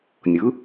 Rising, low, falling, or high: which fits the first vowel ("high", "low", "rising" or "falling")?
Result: rising